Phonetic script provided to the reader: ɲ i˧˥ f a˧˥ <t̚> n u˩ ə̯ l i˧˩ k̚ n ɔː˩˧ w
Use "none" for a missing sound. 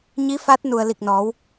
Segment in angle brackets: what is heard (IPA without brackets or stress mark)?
t̚